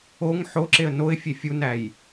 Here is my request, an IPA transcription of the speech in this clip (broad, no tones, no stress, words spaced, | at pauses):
oŋ ħoǁeə̯ noɪ̯fʲe fʲunæj